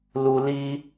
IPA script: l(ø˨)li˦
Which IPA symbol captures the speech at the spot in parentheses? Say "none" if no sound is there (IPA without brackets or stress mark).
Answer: u˨